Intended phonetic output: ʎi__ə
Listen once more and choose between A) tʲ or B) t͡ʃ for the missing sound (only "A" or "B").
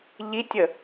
A